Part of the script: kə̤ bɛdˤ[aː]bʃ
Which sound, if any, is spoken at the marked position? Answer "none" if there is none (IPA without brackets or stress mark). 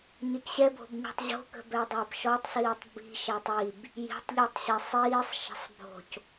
əː